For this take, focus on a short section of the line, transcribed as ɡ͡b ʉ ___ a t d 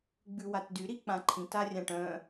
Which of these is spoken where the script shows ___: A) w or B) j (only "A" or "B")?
A